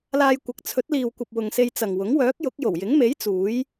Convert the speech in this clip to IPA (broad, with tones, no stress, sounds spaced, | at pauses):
l aː˧ j kʷ ɐ˨ k̚ t͡sʰ ɵ˨˥ t̚ l iː˨ w kʷ ɐ˨ p̚ w ʊ˨ ŋ s e˧ j t͡s ɐ˨ ŋ w ʊ˨˥ ŋ w œː˨˥ k̚ j ʊ˨˥ k̚ j o˨˩ w j ɪ˨˥ ŋ m e˨˥ j t͡s uː˨˥ j